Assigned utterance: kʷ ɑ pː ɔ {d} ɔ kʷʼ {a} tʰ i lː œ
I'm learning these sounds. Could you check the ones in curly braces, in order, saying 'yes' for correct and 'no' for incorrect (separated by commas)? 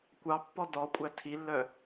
yes, no